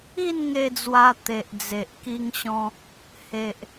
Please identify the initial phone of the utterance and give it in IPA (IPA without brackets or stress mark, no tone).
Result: i